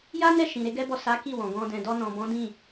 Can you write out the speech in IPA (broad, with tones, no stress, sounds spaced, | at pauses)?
j a˦ n ɛ˦˨ ʃ ĩ˨ ɾ e˨˦ ɡ ɛ˦ b ɔ˦˨ s a˨˦ k i˦˨ w ɔ̃˨ ɡ ɔ̃˧ d ɛ̃˨ d ɔ˧ n ɔ̃˨ b ɔ̃˨˦ d ĩ˦˨